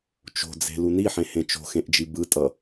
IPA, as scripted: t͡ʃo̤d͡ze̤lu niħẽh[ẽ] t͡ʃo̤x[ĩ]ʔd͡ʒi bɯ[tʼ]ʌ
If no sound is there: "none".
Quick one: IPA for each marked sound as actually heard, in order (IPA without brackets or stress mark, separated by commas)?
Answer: ẽ, ẽ, tʼ